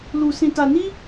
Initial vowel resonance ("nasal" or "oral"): oral